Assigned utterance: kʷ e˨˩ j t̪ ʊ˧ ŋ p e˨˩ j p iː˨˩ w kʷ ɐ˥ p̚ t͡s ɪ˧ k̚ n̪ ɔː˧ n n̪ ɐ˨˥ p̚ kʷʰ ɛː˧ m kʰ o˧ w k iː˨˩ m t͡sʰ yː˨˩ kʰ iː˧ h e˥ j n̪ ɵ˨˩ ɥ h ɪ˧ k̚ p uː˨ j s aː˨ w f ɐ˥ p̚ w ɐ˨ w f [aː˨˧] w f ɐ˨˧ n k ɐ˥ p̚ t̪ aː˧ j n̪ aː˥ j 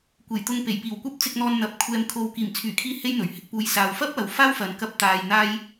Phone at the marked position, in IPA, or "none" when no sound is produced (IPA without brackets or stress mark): aː˥